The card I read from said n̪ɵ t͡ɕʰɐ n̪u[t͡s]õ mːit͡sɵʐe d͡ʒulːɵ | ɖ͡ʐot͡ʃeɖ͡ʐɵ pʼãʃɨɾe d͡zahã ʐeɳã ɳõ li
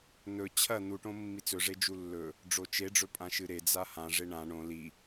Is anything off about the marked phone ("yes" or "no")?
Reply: yes